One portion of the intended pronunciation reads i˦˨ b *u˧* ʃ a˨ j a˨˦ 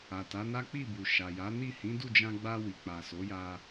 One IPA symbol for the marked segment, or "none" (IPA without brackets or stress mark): u˨